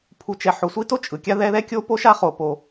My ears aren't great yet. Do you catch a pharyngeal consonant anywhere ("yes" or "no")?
yes